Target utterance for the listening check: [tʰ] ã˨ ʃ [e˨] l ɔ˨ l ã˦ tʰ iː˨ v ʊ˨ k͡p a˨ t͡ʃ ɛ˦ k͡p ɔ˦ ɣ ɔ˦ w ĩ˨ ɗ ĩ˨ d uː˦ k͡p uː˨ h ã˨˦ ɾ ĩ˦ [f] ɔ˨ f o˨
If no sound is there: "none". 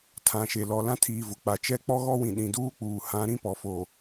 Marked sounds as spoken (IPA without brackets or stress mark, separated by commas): tʰ, e˨, p